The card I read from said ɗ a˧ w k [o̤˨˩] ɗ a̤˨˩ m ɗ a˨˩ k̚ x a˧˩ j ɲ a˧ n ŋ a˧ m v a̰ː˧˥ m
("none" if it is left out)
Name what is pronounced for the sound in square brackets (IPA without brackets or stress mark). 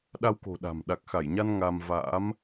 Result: o̤˨˩